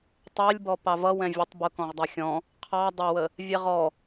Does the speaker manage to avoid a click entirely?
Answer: yes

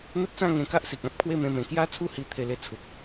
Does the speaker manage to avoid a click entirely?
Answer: yes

